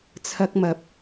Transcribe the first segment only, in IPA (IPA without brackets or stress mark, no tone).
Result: t͡sʰ